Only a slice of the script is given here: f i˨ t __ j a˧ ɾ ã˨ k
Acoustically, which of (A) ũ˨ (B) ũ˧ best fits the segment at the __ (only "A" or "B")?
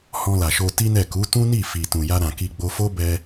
A